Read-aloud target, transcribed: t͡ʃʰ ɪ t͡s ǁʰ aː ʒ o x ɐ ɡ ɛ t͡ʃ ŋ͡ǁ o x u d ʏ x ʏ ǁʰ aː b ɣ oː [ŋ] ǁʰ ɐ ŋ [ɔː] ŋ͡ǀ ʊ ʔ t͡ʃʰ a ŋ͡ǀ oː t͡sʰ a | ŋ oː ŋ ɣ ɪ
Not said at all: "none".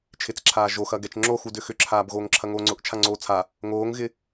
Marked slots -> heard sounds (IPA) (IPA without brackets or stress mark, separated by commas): ŋ, oː